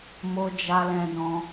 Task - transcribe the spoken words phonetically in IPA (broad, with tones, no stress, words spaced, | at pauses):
mo˦d͡ʒa˦lɛ̃˦dɔ̃˦